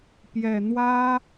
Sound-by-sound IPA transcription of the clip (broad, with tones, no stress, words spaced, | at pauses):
pjɛ˨˩n̪wä˥